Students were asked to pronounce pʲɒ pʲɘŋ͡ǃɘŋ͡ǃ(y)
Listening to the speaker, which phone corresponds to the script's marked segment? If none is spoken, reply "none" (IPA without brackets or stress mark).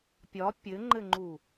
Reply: u